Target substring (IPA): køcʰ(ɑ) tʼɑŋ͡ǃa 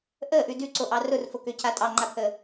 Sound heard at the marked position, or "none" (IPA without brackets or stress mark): a